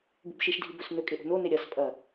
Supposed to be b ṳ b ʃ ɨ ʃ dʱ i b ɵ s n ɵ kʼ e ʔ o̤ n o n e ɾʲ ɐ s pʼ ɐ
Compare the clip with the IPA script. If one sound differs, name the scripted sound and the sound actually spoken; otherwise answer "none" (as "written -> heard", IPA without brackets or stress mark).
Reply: ɨ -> i